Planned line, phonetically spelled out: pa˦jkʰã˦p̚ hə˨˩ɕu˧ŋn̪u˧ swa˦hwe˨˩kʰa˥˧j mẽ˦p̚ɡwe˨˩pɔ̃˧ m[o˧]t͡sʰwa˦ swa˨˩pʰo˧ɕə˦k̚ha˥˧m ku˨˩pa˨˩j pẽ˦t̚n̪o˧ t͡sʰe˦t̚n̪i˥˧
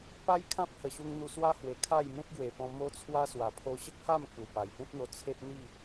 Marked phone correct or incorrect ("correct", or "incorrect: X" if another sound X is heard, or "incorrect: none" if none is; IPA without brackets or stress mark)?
incorrect: o˦